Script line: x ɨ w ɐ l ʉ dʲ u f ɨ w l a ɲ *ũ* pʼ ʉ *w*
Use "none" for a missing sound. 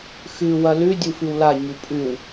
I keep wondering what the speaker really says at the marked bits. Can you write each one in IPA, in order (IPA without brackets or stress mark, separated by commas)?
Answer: u, w